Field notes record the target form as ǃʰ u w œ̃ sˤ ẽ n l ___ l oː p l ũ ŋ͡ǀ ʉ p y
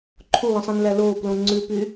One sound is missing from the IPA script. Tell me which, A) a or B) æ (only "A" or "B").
B